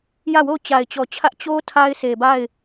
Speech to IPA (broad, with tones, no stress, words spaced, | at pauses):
jä˦˨wo˦˨ʊ̯ t͡ɕa˨ɪ̯t͡ɕɔ˨t͡ɕʰä˦ʔ t͡ɕo˦ tʰa˦ɪ̯sʰe˨ba˦˨ɪ̯